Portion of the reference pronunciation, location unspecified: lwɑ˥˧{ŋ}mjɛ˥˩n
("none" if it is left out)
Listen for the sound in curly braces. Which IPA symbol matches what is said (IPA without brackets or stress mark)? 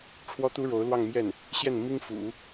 ŋ